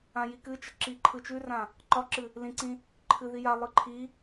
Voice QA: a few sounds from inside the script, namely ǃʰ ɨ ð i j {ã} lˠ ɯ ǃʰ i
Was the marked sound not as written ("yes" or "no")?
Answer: yes